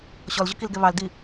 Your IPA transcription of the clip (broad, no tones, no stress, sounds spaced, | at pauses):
ɕ ɔ l ʑ ʊ k i l ɡ ɛ β ɑ l d i